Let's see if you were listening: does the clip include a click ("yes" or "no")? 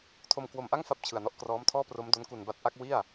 no